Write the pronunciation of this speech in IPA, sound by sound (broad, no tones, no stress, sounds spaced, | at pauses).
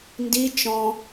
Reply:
n d i t͡ʃ ɔ̃